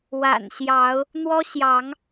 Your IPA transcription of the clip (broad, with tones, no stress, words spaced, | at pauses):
wa̰˨˩nɕjɑ˨˦ʊ̯ | n̪wɔ˦ɕjɑ˨˦ŋ